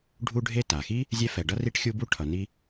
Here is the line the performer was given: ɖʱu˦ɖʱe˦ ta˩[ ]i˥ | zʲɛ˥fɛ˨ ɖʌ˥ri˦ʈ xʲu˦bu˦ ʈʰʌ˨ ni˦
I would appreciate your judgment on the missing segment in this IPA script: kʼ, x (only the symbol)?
x